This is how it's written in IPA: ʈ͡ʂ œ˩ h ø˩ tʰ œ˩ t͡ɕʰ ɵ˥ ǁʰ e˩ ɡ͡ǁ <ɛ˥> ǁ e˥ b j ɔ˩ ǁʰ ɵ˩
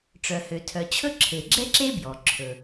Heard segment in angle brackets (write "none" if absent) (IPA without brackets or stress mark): ɛ˥